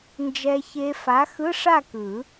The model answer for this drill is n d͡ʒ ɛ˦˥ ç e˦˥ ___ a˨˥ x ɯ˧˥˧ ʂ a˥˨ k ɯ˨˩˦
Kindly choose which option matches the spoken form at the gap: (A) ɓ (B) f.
B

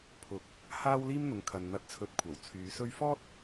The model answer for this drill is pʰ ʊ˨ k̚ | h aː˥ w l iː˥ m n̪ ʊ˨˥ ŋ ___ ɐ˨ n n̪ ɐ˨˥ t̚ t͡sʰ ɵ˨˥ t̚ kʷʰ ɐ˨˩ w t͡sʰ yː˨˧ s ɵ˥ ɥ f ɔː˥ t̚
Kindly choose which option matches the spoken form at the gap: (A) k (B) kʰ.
B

